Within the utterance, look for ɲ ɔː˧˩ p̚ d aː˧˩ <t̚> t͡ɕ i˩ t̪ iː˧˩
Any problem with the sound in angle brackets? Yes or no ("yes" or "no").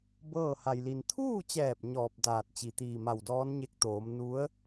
no